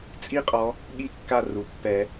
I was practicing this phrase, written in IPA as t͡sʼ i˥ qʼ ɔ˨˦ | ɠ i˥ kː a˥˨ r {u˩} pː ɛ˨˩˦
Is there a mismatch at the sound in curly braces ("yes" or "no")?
no